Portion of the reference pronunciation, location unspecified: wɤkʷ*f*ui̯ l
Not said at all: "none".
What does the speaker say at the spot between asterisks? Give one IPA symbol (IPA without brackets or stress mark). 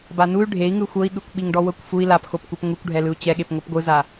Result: f